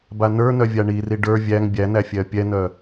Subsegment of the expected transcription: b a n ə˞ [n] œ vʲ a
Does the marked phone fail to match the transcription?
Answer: no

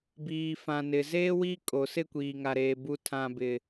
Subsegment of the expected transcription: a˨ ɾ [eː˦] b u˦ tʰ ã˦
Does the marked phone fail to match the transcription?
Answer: yes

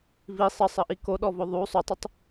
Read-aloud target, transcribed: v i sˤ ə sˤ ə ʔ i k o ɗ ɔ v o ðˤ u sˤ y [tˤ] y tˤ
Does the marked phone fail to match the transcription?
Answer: no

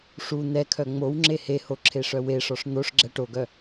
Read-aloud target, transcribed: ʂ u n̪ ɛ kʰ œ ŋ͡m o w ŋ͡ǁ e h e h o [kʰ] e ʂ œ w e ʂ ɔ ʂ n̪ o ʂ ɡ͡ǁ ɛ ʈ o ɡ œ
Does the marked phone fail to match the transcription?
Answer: yes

